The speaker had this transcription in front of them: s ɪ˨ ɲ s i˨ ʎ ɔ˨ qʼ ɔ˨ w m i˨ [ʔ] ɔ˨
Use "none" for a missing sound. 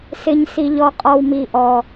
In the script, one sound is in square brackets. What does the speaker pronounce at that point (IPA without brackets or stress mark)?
ʔ